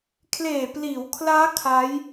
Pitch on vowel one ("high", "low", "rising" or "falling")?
low